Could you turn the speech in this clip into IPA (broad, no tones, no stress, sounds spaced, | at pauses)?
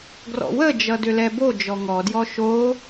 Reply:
ɡ r ɔ̰ w ə d͡ʒ ʌ d ʏ l ɛ b o d͡ʒ ɔ ŋ ɔ d j ɔ ʃ o